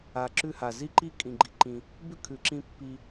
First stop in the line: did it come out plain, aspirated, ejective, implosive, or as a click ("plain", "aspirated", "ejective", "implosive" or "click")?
click